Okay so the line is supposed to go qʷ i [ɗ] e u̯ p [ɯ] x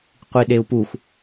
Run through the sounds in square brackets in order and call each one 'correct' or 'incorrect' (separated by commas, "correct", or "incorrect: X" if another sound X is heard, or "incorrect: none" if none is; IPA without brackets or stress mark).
correct, incorrect: u